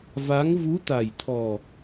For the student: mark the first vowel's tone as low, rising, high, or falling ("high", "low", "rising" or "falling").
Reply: rising